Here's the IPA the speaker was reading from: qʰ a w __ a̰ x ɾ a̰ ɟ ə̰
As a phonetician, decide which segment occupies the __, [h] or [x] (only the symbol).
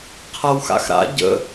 x